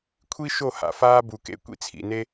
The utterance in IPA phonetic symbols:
kʷʰ i˦ ʃ o˦˨ h a̰˨ f aː˦ b u˨ k ḛ˧ kʷ ḭ˦ t͡sʰ ḭ˨ n e˦

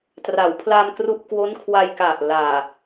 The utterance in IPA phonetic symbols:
t r a˩˦ w pʰ l a˧ m k r u˥˩ ʔ k w o˦˥ n kʰ w a˧ j k a˨˩ ʔ l aː˨˩

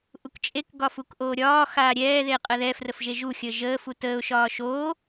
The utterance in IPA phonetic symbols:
ʔ u k t͡ʃʼ e k ɡ ɒ f u k ʔ oː ɾʲ ɒː x aː ɾʲ ɛː ð e qʼ ə ð ɛ f r ə f ʒ e ʒ u xʲ əː ʒ əː f u t əː ʊ̯ ʃ ɒː ʃ oː

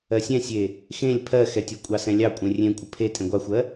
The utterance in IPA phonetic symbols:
ɜ sʲ ɛ̃ sʲ e | x ẽ lʲ pʰ ɜ x ɛ tʲ ɜ kʷʼ ɑ s ɛ̃ lʲ ɑ kʷʼ ẽ rʲ ẽ kʷʼ ə pʰ e tʼ ẽ ɡʷ ɑ xʷ ɜ

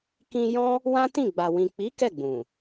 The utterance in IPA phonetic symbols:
k ĩ˧ j ɔ̃˦ | w ã˦ t ĩ˦˨ ɡ͡b a˨ w ĩ˨ k͡p i˨˦ k ɛ˦˨ ɡ͡b ũ˨

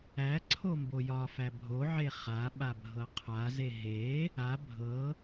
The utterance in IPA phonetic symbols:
æ ǀʰ o m b o j ɒ f æ bʱ o ʕ e χ a ɓ a bʱ ɤ qʰ a z e ɦ e | a bʱ ɤ

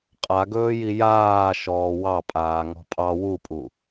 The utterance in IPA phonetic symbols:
qʼ a ɡ ɵː j i j aː ʃ ɔː w ɑ pʼ aː ŋ ɔ̤ pʼ ɑ w u pʼ u

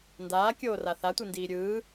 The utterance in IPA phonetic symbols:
n d aː kʲ oː r a θ a tʷ i n d iː ɾʲ ɯː

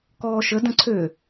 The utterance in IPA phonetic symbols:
k ɔː ʃ ə d ə̃ ǀʰ ø

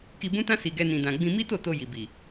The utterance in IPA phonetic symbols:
k i˧ b ũ˦ t ã˦ s i˧ ɡ ɛ˦ n ĩ˧ d ã˧ ɡ͡b ĩ˧ m i˦ t o˦˨ t o˧ j i˨ b i˨

